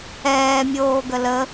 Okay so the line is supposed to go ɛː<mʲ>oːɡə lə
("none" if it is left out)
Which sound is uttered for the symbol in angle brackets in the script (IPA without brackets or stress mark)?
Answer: mʲ